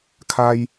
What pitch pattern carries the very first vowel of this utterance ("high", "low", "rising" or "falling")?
high